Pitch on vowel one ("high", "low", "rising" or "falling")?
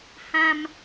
high